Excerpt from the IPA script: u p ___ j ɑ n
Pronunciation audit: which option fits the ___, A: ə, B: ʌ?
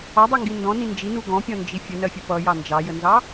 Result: B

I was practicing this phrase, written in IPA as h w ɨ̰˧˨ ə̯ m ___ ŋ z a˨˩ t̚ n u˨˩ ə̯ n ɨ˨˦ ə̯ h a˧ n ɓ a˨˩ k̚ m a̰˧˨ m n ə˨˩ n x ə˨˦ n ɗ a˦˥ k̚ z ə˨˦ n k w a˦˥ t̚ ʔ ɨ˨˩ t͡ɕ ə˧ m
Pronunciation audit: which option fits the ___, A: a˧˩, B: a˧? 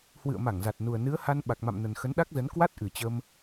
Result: A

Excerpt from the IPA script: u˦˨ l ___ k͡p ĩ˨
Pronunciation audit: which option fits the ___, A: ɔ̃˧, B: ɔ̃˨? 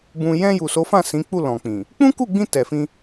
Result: B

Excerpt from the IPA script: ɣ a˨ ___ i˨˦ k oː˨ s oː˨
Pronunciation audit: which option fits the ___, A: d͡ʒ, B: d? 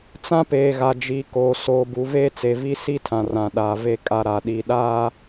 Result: A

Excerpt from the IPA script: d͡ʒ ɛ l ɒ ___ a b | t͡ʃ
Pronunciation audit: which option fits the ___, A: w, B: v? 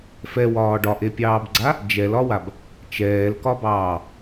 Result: A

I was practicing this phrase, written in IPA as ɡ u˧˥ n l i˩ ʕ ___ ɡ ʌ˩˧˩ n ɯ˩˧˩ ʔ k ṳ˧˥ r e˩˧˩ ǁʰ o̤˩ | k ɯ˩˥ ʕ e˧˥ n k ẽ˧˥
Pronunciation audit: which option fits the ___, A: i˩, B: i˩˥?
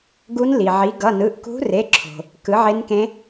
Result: B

